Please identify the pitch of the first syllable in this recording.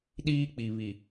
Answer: high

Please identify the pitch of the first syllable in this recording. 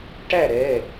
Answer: falling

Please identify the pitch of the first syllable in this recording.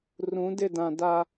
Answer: rising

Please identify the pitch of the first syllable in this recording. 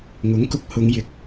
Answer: rising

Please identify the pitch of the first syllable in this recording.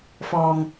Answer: low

